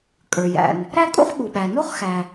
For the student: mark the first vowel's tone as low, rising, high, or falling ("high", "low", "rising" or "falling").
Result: low